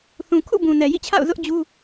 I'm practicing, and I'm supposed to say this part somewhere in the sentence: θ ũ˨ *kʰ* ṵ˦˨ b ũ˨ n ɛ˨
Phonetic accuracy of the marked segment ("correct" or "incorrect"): correct